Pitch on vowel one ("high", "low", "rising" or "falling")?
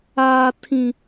high